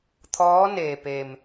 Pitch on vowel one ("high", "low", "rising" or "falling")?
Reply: rising